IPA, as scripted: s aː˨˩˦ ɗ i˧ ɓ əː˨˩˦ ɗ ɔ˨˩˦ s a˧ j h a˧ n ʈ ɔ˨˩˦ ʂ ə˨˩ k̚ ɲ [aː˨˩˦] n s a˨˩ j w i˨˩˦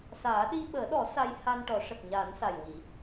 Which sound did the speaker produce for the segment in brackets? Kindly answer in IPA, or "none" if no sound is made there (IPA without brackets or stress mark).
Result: aː˨˩˦